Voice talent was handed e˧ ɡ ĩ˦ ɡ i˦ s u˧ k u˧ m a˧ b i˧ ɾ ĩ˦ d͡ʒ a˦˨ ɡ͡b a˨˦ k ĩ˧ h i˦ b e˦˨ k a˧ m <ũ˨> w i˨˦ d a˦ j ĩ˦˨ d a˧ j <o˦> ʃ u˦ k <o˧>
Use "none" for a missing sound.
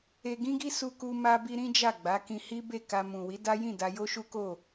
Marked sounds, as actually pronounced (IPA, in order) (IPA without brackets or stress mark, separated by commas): ũ˨, o˦, o˦˨